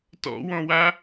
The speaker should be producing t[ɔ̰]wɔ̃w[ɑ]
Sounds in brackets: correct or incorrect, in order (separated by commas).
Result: correct, incorrect